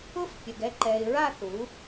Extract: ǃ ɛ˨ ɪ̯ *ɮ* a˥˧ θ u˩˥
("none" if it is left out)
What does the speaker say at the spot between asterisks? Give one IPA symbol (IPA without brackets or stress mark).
ɹ